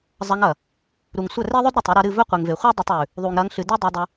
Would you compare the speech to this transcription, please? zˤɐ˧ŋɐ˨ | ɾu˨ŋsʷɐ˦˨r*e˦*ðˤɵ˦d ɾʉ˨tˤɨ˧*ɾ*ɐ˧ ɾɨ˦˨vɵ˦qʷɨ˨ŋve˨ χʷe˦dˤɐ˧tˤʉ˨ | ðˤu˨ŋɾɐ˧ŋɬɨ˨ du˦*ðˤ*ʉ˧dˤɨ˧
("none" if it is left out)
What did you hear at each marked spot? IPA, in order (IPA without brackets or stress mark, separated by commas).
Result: e˦, ɾ, dˤ